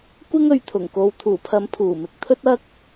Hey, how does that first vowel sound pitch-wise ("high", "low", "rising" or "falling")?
high